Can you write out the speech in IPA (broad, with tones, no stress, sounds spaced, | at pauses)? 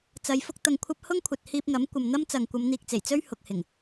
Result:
t͡s ɐ˨˧ j f ʊ˥ k̚ t̪ ɐ˧ ŋ kʷʰ ɐ˥ p̚ h ʊ˥ ŋ kʷʰ ɐ˨ t̚ h iː˧ p̚ ŋ ɐ˨˥ m kʷ ɐ˨ m n̪ ɐ˥ m t͡s ɐ˨ ŋ kʷ ɐ˨˧ m n̪ iː˨ k̚ t͡s e˨˩ j t͡s ɵ˥ ɥ h ʊ˨ k̚ h ɪ˨˩ ŋ